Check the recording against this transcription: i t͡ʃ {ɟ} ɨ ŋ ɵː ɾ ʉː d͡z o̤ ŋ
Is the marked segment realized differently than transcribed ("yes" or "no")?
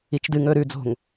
yes